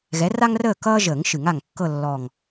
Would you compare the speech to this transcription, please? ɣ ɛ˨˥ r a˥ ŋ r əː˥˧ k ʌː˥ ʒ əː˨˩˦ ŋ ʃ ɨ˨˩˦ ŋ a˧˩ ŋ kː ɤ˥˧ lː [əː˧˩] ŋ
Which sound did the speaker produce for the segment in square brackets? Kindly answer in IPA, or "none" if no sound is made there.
ɔː˧˩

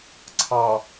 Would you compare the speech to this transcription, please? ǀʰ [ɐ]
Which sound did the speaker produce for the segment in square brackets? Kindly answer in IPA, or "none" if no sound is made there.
ɑ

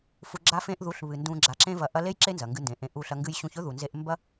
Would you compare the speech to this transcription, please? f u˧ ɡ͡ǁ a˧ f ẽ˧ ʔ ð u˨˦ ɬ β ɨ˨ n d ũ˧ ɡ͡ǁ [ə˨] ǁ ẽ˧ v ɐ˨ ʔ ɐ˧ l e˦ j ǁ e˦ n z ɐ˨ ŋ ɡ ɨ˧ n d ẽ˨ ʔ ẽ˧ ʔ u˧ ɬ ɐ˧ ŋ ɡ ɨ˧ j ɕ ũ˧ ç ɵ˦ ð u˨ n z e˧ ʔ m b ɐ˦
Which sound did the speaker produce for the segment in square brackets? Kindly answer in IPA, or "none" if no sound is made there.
a˨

